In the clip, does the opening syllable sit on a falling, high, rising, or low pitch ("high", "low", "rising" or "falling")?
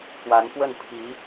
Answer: rising